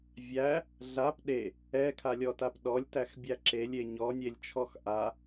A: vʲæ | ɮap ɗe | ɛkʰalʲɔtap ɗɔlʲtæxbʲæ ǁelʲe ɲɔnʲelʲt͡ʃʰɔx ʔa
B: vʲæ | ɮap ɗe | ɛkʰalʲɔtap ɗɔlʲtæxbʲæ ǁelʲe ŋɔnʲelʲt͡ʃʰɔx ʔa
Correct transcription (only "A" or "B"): A